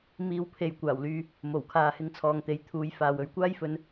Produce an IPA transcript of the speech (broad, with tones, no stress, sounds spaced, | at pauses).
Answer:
m iː˧ w pʰ e˨ j kʷ aː˨˩ w l yː˨ | m o˨˩ w kʰ aː˨ h ɪ˨˧ ŋ t͡sʰ ɔː˨ ŋ t̪ e˨˧ j t̪ʰ uː˨˧ j f aː˨ w ɵ˨˧ ɥ kʷ aː˥ j f ɵ˨˧ n